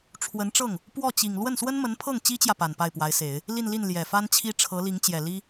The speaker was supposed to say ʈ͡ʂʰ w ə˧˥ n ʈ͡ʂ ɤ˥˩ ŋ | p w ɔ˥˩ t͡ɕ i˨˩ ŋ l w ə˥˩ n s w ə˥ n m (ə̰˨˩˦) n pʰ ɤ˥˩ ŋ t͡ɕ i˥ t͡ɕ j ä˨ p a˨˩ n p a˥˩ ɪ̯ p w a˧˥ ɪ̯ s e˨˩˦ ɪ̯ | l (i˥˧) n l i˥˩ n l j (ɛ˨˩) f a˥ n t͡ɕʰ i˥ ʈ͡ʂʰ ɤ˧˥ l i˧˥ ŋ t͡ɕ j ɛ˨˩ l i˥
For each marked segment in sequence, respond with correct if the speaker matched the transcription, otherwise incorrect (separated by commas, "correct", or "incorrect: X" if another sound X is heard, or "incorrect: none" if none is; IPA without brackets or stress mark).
incorrect: ə˧˥, correct, correct